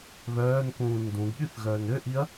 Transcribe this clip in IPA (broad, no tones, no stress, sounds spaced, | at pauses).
β œː n k ũː n d ũ ɡ ɠ y θ ɣ œː n ø ʔ i ɐ̯